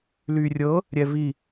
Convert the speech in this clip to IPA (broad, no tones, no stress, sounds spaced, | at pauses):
l y rʲ ɤ | ɾʲ ɛ v i